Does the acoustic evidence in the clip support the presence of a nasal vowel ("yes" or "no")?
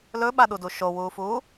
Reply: no